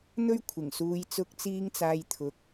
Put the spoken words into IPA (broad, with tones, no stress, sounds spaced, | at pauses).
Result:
n̪ ɵ˥ ɥ kʷʰ ɪ˨˩ ŋ s uː˨ j t͡s ʊ˧ k̚ t͡s iː˧ ŋ t͡s aː˨ j t̪ʰ ʊ˨˥ k̚